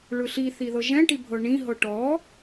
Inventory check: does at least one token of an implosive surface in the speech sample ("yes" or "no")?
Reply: no